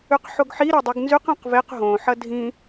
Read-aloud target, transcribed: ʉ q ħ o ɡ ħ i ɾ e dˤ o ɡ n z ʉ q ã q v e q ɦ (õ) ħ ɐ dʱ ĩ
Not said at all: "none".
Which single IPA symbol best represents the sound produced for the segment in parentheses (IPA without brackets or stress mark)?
õ